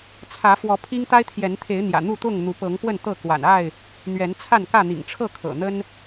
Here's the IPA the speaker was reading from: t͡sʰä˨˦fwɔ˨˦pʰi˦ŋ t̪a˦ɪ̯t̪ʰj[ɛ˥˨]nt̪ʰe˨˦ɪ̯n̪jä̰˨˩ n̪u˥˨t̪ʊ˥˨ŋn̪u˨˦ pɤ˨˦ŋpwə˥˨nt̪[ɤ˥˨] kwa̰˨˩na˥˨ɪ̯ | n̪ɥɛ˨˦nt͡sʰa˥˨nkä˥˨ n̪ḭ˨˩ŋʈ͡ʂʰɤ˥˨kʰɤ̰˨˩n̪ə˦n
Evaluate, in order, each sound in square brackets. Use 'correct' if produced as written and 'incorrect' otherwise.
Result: incorrect: ɛ˨˦, correct

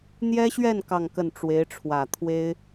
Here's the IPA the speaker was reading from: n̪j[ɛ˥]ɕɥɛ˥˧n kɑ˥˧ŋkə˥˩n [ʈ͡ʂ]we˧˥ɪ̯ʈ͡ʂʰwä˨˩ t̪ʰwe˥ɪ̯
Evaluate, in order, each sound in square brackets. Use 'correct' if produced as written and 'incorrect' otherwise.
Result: correct, correct

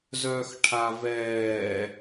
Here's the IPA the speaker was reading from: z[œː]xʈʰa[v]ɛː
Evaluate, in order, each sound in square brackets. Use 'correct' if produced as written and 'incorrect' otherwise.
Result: correct, correct

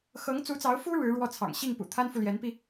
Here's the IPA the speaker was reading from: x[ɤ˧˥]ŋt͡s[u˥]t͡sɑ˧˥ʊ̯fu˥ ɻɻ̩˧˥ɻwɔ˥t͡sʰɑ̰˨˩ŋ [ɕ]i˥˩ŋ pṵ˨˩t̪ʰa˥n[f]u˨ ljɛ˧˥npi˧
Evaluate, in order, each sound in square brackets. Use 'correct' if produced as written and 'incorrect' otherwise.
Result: correct, incorrect: u˧˥, correct, correct

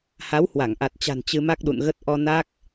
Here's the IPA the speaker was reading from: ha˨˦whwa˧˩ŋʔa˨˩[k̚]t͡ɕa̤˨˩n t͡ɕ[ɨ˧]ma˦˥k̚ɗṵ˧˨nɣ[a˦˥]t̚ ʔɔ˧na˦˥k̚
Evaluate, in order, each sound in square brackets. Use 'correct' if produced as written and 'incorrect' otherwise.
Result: incorrect: t̚, correct, incorrect: ə˦˥

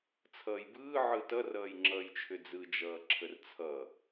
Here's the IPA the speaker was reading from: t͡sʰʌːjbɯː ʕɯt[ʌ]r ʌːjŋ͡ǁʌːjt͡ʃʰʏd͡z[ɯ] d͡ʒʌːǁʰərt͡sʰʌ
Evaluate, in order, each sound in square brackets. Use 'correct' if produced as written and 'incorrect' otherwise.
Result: correct, correct

